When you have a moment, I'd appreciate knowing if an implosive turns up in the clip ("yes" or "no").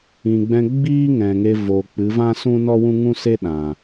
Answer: yes